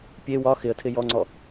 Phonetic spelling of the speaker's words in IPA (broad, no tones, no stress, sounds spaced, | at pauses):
pʲ e w ɒ x ɪ ə̯ tʰ ɪ j ɔ ŋ͡ǀ ɔ